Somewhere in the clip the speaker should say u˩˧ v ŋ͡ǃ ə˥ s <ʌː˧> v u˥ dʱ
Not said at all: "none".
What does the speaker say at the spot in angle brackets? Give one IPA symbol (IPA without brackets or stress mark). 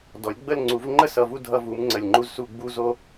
ʌ˧